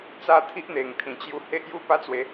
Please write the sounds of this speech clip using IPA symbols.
t͡sa˦ t̪ʰi˦ʔn̪e˨˩ŋt̪ʰĩ˨˩t͡ɕju˧ he˦ʔju˦pa˦t͡swe˨˦

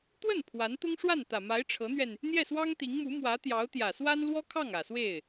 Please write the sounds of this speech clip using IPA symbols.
t̪wə˥˩n pʰwa˧˥n t̪ʊ˥ŋʂwa˥˩nt̪ä˨˩ma˧˥ɪ̯ ʈ͡ʂʰɤ˧˥n̪ɥɛ˧n | n̪jɛ˥˩swɑ˥ŋt̪i˧˥ŋmu˧˥ mwä˧˥t̪jɑ˧˥ʊ̯t̪jä˨˩swa˥n lwɔ˥kʰɑ˥˩ŋ ä˨˩swe˥˩ɪ̯

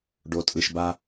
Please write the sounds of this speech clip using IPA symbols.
ɖo˨tʼɯ˨ʃba˦

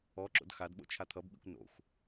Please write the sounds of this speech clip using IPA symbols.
ɔǁo̰d xadɓo̰ t͡ʃʰat̪ʰʌbɓḭkʷ no̰xʷ

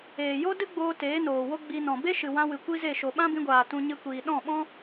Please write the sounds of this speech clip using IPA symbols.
eː˨jo˦dɨ˦ɡ͡boː˧ teː˨˦noː˨wo˦ ɡ͡bi˧nɔ̃˨ be˦ʃɨ˨wã˧ wɨ˨kʷi˦ze˦˨ ʃo˨ɓã˦bĩ˧ɡʷaː˨ tũ˧ ɲɨ˧kʷiː˨ ɗɔ̃˦˨ɓɔ̃˦

